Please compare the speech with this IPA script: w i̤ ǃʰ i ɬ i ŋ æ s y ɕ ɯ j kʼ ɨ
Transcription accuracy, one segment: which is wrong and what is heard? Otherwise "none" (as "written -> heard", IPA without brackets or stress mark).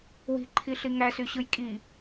ɨ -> i